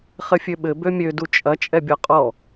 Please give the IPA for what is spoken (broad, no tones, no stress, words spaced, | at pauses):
χɘfʲøɓɘ bømʲø dut͡ʃʼɐ t͡ʃʼɛbʲɔqʼɔ